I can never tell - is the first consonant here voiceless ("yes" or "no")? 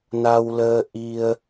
no